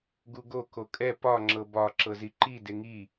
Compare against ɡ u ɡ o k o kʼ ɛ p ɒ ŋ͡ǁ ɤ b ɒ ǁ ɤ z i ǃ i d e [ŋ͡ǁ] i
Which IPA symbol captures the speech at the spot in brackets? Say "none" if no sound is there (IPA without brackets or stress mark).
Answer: ŋ